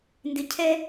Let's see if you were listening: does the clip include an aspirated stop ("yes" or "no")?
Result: yes